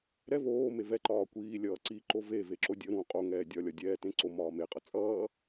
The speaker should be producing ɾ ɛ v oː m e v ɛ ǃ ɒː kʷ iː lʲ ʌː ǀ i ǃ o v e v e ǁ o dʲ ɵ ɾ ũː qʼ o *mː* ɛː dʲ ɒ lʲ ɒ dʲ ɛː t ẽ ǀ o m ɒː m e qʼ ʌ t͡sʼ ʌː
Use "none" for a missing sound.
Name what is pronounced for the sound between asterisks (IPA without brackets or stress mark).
ŋ